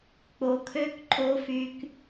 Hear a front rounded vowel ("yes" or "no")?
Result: yes